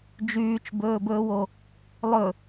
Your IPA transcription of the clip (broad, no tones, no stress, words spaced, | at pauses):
d͡ʒyːt͡ʃbɵːbɵːwo | lˠɵ